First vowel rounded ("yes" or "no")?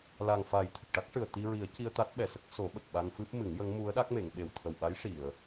no